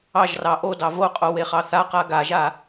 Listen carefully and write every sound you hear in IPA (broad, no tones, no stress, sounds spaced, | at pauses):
ɑ ʒ r ɑ ʔ o d ɑ v o qʼ o w e χ ɑ θ a q a ɡ a ʒ a